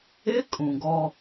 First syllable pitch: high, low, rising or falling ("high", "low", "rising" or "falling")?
high